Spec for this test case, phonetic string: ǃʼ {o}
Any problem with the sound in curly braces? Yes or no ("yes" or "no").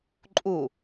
yes